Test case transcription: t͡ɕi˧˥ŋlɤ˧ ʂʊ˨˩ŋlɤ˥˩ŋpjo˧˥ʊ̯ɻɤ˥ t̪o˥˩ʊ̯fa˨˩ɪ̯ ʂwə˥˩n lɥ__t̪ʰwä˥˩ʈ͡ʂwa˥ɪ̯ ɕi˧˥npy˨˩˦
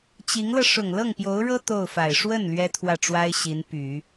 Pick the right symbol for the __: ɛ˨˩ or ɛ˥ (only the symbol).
ɛ˥